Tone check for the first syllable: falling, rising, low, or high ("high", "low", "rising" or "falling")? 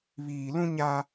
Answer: low